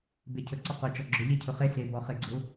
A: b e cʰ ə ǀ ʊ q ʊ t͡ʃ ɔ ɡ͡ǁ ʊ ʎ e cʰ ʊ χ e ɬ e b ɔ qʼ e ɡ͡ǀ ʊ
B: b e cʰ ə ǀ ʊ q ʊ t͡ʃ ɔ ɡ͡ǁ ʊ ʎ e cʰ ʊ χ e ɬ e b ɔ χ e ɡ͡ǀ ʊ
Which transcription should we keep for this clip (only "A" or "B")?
B